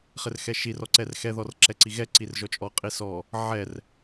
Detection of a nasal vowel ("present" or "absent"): absent